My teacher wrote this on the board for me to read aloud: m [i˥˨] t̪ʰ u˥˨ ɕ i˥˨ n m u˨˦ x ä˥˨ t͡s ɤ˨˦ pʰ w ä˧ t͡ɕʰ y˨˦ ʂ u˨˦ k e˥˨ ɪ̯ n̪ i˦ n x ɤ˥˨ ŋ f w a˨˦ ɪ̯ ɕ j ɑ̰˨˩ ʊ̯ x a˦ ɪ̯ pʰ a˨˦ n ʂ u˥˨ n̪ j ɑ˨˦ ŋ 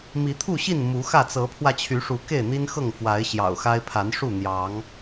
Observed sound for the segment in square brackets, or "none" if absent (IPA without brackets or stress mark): i˨˦